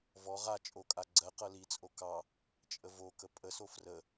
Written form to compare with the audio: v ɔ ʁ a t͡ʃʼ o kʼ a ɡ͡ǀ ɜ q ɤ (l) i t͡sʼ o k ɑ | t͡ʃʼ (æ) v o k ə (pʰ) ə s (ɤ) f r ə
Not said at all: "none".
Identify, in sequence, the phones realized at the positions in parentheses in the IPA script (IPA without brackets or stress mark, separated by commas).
l, ə, pʼ, o